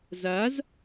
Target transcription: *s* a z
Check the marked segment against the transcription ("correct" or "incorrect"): incorrect